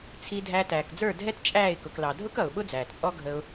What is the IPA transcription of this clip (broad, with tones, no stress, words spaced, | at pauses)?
t͡sʰi˦dʱæ˦ tæː˨kd͡zə˞˦˨ dʱɛ˦tt͡ʃʼæː˦˨ɪ̯ kʊ˧k lɑ˨dʱʊ˦kʌ˨ʊ̯ ɓʊ˦d͡zæː˨tpʼɔ˦ɡʱə˧ʊ̯